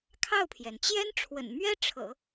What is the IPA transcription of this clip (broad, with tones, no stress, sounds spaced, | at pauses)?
kʰ ɑ˥˩ ʊ̯ pʰ j ɛ˩ n t͡ɕ j ɛ˥ n ʈ͡ʂʰ w ə̰˨˩ n m ɥ ɛ˥ ʈ͡ʂʰ ɤ̰˨˩˦